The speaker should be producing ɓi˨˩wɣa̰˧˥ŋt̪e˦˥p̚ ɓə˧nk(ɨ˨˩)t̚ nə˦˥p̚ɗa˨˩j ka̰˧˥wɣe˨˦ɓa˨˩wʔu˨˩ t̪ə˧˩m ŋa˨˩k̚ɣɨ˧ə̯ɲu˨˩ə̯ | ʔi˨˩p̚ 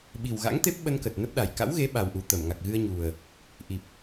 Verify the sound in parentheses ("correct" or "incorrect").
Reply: incorrect